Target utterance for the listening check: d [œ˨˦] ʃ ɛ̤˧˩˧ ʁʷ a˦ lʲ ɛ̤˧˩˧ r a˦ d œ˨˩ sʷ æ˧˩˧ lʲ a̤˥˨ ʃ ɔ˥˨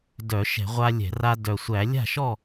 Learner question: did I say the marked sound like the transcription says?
no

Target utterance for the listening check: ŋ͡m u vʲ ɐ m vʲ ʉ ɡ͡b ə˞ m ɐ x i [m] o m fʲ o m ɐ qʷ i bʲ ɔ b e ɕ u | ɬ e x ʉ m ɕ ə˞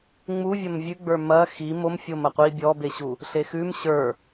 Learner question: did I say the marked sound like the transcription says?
yes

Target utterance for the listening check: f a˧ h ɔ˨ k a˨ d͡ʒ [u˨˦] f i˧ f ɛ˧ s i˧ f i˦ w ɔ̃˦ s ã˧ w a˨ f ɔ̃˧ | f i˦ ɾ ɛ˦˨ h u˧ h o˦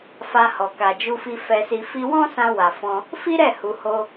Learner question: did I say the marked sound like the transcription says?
no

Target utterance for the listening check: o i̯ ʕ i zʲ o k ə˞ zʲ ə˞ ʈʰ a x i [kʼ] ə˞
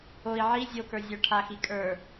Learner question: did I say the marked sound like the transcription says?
yes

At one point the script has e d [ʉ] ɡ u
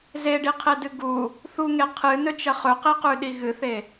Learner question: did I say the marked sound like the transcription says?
no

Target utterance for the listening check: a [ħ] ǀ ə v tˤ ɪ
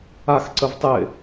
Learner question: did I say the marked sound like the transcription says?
no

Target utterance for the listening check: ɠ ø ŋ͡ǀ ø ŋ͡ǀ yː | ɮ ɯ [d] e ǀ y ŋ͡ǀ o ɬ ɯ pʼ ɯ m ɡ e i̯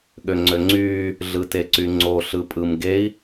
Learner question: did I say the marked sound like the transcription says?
no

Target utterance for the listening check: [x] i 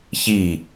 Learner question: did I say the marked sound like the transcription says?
no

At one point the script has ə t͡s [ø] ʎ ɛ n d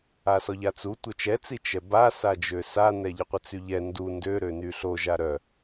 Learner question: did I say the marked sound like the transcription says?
no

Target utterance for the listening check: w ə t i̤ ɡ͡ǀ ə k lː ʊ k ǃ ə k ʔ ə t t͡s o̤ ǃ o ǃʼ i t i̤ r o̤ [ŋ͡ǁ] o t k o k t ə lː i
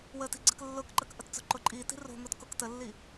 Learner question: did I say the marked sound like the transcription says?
no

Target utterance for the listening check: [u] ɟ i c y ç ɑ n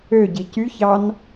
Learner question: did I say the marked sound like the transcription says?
no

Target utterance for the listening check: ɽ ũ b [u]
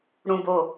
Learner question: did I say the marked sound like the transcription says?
no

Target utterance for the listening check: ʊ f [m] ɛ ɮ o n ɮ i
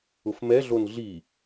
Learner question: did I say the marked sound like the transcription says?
yes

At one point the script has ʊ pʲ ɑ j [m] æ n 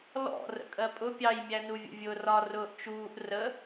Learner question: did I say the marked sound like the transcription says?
no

